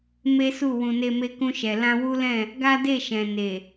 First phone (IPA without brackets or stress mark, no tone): m